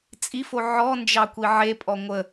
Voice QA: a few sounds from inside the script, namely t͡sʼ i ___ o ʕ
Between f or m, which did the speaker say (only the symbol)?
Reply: f